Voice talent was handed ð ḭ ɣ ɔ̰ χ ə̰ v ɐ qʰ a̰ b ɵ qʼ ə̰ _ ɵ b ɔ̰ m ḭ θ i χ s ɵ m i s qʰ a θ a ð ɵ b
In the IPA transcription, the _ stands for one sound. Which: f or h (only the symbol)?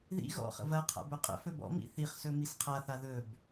f